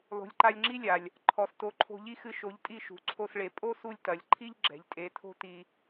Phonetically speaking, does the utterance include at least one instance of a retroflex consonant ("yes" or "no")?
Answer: yes